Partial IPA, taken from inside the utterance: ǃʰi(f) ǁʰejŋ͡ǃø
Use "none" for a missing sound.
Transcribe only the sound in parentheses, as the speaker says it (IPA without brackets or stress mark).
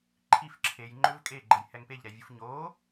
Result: f